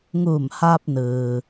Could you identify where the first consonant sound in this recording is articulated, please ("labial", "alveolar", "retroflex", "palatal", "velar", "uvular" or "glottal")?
velar